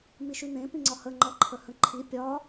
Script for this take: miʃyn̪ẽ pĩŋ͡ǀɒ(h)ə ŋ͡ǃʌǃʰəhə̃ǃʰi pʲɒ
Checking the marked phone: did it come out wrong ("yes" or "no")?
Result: no